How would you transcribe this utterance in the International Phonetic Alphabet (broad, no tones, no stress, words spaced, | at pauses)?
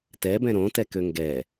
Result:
tɛbɛ̃ ɾõtɛkø ŋɡɛ